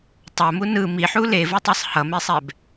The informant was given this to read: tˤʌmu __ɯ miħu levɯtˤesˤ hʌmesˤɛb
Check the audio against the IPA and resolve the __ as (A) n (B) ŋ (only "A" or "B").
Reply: A